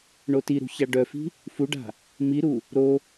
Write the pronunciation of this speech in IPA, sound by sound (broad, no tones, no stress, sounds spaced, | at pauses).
ɳ o t i ɾ ṳ ç a ɖ œ f i̤ | f u ɖ a̤ | m i ɾ u | ɾ o